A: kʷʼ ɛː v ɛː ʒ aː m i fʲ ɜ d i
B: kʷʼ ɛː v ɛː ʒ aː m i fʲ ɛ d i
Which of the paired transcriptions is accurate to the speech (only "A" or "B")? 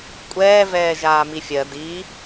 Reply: A